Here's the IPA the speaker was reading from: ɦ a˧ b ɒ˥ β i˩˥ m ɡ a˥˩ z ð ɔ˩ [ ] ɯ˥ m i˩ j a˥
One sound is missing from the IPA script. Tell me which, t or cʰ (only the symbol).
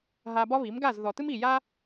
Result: t